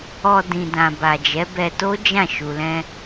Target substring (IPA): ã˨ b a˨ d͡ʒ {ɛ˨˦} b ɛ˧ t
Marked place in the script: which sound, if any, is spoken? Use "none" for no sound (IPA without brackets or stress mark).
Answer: ɛ˨˦